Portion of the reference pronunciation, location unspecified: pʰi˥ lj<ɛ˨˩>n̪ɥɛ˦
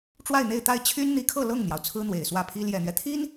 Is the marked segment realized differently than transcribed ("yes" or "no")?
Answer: no